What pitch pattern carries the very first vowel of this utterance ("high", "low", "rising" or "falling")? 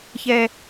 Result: high